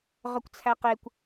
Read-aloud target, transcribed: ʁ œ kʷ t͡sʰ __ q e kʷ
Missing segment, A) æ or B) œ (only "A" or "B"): A